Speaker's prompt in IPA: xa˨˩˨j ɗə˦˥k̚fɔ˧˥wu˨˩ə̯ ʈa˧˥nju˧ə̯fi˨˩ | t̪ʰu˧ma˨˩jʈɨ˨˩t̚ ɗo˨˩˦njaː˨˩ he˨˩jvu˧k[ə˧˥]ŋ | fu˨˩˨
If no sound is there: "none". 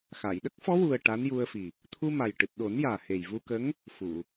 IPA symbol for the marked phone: ə˧˥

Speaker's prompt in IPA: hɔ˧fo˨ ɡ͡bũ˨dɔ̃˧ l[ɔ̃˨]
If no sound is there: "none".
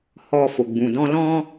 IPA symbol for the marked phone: ɔ̃˧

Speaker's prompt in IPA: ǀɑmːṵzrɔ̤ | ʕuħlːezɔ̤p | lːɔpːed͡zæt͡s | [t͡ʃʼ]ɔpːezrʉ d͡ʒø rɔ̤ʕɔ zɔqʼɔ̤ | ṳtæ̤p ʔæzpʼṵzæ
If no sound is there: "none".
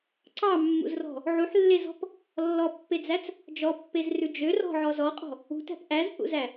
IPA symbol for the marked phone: d͡ʒ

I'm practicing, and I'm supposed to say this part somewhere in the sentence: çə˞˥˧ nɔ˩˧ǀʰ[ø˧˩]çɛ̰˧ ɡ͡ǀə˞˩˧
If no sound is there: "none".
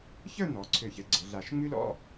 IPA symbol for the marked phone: ø˧˩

